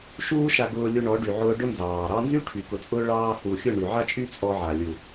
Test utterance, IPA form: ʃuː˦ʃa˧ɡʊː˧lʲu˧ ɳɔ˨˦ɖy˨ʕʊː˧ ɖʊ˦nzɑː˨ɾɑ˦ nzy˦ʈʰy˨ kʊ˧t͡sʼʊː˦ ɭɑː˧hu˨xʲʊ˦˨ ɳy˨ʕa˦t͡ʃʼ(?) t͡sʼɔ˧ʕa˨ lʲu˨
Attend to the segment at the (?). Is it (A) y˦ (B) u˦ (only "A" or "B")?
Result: A